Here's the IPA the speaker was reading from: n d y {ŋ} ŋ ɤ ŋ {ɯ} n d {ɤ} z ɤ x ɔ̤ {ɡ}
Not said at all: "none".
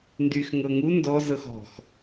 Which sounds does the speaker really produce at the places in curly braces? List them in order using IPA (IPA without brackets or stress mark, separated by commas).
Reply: x, u, ɔ, x